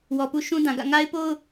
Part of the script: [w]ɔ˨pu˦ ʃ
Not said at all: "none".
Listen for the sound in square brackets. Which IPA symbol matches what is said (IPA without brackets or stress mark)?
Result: w